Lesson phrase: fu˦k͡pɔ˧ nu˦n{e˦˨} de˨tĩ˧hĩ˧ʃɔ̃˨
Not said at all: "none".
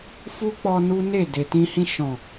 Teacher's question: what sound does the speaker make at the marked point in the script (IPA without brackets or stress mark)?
e˦˨